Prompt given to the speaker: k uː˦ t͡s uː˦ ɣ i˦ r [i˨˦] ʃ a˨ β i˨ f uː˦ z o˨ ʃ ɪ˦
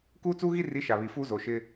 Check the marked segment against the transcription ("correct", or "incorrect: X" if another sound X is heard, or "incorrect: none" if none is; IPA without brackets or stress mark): correct